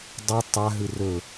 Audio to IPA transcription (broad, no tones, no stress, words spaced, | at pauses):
dˤu tˤa ɦɨrɵ